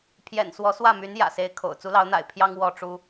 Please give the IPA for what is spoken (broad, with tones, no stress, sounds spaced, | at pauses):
pʰ j ɛ̰˨˩ n s w ɔ˧˥ s w ä˥˩ m y˧˥ n j ä̰˨˩ s e˧˥ ɪ̯ kʰ o̰˨˩ ʊ̯ t͡s u˧˥ l ɑ˧˥ ʊ̯ n̪ a̰˨˩ ɪ̯ pʰ j ɑ˥ ŋ w ɔ˥˩ ʈ͡ʂ u˥